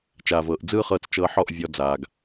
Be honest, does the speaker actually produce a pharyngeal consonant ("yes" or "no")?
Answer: yes